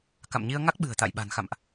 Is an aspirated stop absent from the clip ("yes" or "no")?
yes